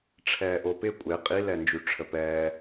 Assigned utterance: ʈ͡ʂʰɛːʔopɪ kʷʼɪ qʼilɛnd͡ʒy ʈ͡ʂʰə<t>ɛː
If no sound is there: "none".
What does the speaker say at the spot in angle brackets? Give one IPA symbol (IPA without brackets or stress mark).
p